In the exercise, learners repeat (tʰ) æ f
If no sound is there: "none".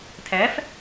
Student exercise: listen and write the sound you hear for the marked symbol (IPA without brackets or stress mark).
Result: tʰ